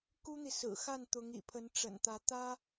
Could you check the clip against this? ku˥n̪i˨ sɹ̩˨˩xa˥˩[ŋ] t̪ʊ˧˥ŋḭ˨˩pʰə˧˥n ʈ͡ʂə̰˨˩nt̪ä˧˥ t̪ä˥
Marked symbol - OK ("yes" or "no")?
no